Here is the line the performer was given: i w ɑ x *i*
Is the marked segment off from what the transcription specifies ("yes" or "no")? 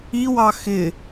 yes